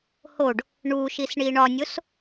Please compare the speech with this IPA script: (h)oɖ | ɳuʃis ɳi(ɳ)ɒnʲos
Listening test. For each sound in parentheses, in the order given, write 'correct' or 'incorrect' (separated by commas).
correct, correct